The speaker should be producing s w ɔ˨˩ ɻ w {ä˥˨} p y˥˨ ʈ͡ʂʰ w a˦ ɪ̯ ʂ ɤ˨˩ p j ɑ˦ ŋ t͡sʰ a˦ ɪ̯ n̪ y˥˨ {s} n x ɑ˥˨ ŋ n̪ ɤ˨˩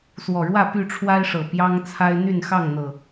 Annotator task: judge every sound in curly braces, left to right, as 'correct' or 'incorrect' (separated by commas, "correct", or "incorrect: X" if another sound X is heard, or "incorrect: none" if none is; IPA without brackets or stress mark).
correct, incorrect: none